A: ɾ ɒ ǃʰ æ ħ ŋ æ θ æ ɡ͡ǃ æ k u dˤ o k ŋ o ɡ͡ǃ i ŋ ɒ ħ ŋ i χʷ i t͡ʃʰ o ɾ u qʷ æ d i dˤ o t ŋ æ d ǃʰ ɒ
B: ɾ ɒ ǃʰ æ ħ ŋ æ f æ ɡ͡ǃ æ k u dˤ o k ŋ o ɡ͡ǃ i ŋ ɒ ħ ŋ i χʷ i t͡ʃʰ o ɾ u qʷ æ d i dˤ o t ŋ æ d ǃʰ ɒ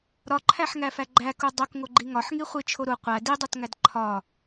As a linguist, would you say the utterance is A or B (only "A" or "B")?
B